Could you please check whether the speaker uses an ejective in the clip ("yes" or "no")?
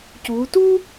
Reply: no